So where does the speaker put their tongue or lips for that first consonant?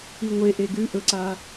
velum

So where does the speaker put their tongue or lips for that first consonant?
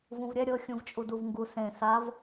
lips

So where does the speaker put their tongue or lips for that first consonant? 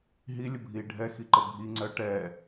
throat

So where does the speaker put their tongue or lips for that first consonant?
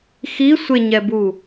velum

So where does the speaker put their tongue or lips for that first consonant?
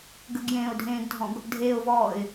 velum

